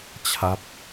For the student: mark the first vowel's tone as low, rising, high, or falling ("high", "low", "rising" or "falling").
falling